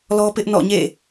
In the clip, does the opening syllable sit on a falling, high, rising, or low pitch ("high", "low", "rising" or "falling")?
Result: high